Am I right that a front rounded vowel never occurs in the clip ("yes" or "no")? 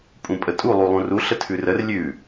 yes